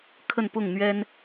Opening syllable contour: falling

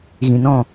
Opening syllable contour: low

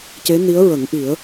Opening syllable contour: rising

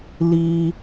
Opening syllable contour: high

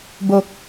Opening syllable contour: low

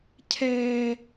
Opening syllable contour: high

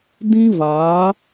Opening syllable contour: high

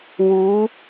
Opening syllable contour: rising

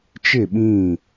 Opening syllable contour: falling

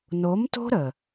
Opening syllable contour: rising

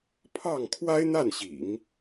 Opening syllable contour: falling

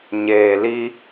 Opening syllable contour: low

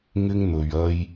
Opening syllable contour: high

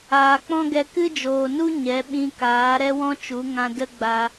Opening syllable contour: low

